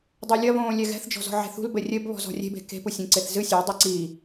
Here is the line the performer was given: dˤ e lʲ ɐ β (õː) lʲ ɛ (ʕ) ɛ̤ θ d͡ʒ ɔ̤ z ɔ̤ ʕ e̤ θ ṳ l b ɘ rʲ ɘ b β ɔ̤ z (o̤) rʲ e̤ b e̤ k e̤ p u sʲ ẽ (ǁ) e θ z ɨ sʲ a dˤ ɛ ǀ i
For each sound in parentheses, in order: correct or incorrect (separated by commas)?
correct, incorrect, incorrect, incorrect